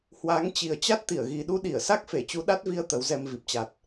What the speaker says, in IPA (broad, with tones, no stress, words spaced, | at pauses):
hwa˨˦ŋt͡ɕi˨˩ə̯ t͡ɕa˦˥t̚t̪i˧˩ə̯ɣi˨˩ ɗu˧ɗi˧˩ə̯sa˦˥k̚ fe˧˩t͡ɕu˨˦ɗa˦˥t̚vi˧ə̯ t̪ə˨˦wzɛ˧mvi˨˩p̚t͡ɕa˨˩t̚